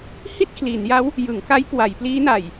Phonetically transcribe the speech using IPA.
hi˥˩t̚kʰliː˩˦nja˦˥w | jɯ˩˦ŋka˦˥j kwa˩˦jpliː˦˥na˨˩j

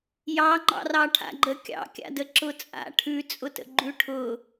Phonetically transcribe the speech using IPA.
jɑŋ͡ǃɑ̰rɑ ʈʰa̰ɡ͡ǃəkʲɑ̰kʲa̰ dəǁʊt͡sʼa̰ ʈʰʉt͡sʼʊtə̰ ɡ͡ǃʉʈʰʊ

